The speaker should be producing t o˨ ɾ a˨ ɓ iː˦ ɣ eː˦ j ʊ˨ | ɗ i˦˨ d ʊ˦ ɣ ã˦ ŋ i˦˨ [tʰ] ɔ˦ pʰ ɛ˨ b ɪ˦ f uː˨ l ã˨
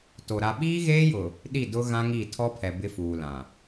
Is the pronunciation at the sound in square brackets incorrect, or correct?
correct